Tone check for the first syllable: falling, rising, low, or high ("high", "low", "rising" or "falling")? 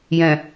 low